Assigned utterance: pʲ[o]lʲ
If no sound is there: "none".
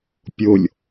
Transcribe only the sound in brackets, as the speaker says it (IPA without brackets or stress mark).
o